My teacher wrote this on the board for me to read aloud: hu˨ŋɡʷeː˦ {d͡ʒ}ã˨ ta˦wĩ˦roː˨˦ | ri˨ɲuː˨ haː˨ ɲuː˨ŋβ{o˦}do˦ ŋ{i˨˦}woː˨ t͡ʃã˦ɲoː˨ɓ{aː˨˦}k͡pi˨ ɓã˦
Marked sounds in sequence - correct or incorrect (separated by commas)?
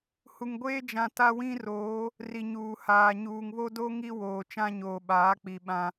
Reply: correct, correct, incorrect, correct